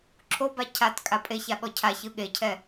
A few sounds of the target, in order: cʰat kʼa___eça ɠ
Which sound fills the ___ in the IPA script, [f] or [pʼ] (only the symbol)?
pʼ